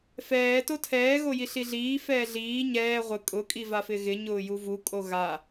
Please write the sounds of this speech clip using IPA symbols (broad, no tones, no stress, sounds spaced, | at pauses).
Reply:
f ɛː t o tʰ ɛː ɣ o j i ɬ i ɮ iː f ɛː ɮ iː ɲ ɛː ʁʷ ɪ kʼ ʊ kʼ i v a f ɪ ɣ ɪ ɲ ʊː j u v u kʼ o ɣ a